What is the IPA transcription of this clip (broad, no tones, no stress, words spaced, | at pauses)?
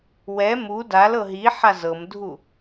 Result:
wɛ mu dalɤ ɦiħa zɤmdʱu